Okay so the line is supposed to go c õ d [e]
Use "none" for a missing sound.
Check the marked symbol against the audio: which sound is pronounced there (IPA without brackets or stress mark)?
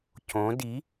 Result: i